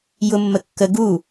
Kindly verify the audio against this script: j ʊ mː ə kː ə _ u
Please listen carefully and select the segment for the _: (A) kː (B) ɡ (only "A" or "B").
B